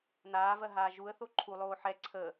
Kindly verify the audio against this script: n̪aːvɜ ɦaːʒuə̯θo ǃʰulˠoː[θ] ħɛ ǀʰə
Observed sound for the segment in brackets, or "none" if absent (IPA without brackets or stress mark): none